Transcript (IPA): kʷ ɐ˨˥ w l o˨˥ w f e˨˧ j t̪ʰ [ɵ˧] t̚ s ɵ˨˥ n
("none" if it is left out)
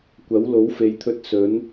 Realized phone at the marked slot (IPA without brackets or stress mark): ɵ˧